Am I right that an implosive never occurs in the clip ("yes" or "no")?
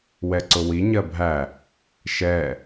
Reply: yes